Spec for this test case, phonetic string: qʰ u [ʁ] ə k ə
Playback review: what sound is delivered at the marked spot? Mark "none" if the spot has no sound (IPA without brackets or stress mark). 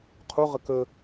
ʁ